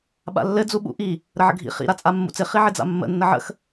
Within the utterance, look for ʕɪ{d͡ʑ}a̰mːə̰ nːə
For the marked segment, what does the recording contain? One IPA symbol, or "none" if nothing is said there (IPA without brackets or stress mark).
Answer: d͡z